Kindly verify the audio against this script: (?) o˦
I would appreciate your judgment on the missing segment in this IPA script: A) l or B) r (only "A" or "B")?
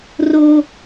B